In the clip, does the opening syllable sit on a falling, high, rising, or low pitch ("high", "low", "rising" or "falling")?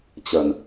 low